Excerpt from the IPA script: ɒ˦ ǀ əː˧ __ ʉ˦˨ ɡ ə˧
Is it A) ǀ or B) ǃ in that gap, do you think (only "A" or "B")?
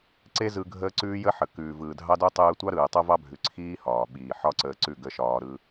A